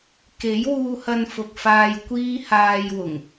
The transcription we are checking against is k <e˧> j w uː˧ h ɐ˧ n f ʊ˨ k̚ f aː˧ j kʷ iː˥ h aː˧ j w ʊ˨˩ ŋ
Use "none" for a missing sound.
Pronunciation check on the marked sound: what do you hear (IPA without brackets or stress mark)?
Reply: e˨˥